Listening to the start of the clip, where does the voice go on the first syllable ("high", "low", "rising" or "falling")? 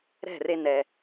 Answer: falling